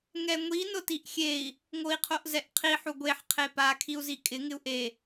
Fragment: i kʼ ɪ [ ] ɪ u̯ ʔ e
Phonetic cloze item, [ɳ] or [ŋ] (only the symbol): ŋ